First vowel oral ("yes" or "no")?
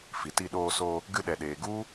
yes